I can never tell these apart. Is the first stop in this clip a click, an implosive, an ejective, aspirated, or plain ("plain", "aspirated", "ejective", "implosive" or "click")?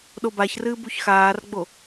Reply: implosive